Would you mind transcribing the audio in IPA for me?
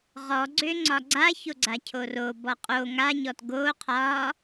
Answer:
ʁɔɡ͡ǀø ŋ͡ǀɒɡ͡ǀaço ɡ͡ǀacʰoro bɔqʼo ŋaɲɔt ɡo qʰɒ

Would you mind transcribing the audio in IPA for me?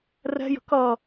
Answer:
rɛ̤jə̤ kʌ

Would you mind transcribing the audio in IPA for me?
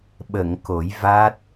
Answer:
ɓə˨˩˨ŋ ko˨˩˦jva˦˥t̚

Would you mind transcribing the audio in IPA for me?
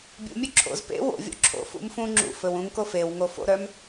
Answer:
bʲṵmʲɵ ǁʰo̰z pḛ wo̰vʲo̰ ǁʰo̰fṵm fũ ŋ͡ǁṵfɵw ũŋko fewŋo fo̰ɾœm

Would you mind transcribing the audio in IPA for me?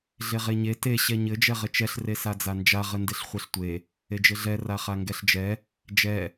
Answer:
ɮeʁeɲe te ɕɛɲɘ d͡ʒɛʁɘt͡ʃɛɬ resad͡zand͡ʒa ʁɘndeɬχʷeɬtʷe | ed͡ʒɘɮɛ raχaŋɡɛɬd͡ʒɛ | d͡ʒɛ

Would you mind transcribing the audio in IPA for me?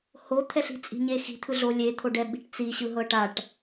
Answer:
hot̪ʰɛɬi̤t͡sʼi̤ ɲexi̤t̪ʰɯ ɮo lʲet̪ʰoɖɛɓi̤ʈ t͡siɕɯɦɤ ʈaʈ

